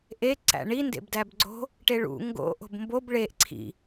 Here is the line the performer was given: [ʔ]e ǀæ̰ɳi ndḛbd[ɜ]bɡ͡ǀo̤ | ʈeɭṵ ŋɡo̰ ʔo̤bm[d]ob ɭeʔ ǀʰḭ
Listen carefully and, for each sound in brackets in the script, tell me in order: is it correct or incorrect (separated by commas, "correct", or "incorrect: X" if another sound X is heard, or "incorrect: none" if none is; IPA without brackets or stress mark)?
correct, incorrect: æ, incorrect: b